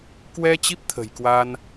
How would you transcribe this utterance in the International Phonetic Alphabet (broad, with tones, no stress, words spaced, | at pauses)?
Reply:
kwɛ˧ t͡ɕi˦˥p̚t̪ʰə̤˨˩jkwa˧n